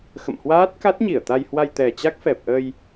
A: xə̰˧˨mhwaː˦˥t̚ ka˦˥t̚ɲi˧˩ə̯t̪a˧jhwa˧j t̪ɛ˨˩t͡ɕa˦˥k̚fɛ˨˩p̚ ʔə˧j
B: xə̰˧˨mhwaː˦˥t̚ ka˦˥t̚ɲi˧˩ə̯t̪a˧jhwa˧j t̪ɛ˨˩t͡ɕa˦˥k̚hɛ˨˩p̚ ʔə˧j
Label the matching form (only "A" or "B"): A